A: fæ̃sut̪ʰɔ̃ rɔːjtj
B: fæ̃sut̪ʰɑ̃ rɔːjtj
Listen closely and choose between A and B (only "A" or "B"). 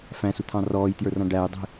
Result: B